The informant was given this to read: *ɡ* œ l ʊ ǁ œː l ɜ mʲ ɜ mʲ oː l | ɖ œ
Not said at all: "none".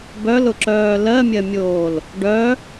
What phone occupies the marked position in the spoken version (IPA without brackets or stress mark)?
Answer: b